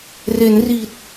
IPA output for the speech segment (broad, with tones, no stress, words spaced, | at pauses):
re˩˦nriː˨˩t̚